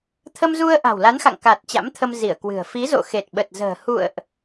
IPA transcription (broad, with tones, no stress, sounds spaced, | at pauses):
t̪ʰ ə˧ m z u˧ ə̯ ʔ a̤˨˩ w l a˨˦ n x a̰˧˨ ŋ k a˨˩ t̚ t͡ɕ a̰˧˥ m t̪ʰ ə˧ m z i˧˩ ə̯ k w ɨ̤˨˩ ə̯ f i˨˦ z o̰˧˨ x e˨˩ t̚ ɓ ə˨˩ t̚ z ə̤ː˨˩ h ṵ˧˨ ə̯ ʔ